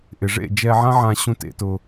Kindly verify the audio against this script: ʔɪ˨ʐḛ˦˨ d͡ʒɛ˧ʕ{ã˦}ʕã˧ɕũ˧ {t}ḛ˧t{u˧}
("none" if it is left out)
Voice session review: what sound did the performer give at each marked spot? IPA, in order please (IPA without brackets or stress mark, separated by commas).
ã˦, t, ʊ˧